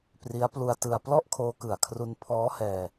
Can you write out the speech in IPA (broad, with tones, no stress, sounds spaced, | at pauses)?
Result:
p r i˦˥ a̯ p l u˧ a̯ t ɯ˧ a̯ p l ɔ˥˩ ʔ kʰ oː˧ k ɯ˨˩ a̯ kʰ r u˧ n pʰ ɔː˦˥ h ɛː˧